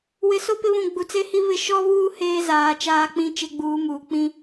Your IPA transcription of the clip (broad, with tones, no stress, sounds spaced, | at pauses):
w ɪ˨ s o˦ p ɪ˦ β ũ˨ ɡ͡b u˨ t͡s e˦ h i˦ β ɪ˦˨ ʃ ɔ˦ β uː˦ h eː˦ z aː˨ t͡ʃ aː˦ k͡p ĩ˦ t͡ʃ e˦ ɡ͡b uː˨˦ m uː˨ k͡p ĩ˦